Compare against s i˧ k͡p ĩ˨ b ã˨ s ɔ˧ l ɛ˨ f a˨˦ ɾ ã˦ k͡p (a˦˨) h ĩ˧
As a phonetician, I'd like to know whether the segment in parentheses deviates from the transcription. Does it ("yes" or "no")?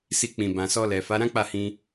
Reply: no